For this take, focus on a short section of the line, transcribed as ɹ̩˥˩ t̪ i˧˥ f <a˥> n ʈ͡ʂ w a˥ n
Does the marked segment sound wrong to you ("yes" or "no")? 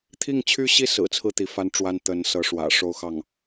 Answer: no